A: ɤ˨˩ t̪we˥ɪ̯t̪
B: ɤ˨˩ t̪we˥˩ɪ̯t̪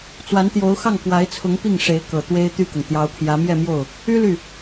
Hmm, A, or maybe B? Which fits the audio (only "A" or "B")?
A